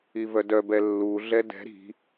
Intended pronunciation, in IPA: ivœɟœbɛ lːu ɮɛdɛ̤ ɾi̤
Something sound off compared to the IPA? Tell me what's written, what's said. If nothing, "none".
ɟ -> d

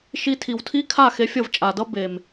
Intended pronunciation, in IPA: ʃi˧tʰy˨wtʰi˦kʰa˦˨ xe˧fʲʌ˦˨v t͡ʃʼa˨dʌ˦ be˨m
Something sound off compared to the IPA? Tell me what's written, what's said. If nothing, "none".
y˨ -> i˨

